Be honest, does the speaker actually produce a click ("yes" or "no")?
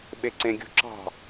yes